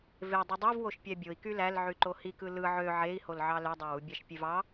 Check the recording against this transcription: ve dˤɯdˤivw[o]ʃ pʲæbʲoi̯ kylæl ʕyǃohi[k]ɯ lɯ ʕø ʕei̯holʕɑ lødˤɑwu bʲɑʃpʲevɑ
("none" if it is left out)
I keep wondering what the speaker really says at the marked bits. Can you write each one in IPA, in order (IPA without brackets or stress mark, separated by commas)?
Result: o, k